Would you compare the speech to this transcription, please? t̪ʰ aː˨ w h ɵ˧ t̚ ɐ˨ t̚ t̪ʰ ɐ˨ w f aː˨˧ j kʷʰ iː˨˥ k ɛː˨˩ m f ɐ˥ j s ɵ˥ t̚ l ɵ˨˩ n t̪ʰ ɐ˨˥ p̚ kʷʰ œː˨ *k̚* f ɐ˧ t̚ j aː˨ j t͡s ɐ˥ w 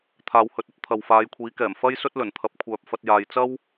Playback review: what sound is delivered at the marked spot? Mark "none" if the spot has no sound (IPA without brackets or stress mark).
p̚